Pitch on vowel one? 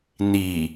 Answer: low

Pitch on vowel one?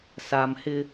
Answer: low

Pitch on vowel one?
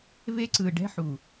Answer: high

